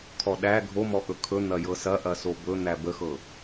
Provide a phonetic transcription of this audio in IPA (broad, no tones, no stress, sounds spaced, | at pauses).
kʰ ɔ ɗ æ ɡʱ o m ɔ ʔ ɵ kʰ ɵ n̪ ɐ j ɤ s ɐ ʔ ɐ s o b ɵ n̪ æ b ə x ɤ